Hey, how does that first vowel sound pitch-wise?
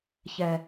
low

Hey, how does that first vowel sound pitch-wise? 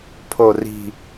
low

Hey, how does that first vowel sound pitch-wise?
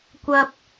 high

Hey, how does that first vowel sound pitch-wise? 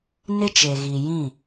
high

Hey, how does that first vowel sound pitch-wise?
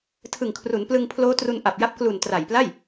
low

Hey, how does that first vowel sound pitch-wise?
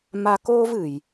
high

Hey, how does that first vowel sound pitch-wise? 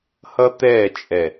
high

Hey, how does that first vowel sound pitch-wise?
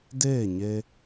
falling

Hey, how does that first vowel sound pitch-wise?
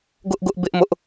high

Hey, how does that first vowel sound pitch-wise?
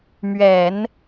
low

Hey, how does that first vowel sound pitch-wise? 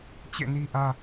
falling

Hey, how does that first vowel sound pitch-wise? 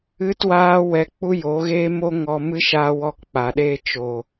high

